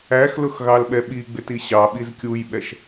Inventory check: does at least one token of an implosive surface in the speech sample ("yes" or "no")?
yes